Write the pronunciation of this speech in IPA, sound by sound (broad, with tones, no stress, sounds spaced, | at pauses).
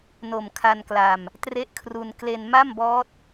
n o˨˩ m kʰ a˧ n k l a˧ m | t r e˦˥ ʔ kʰ r u˧ n k l e˧ n m a˥˩ m b ɔː˦˥ t̚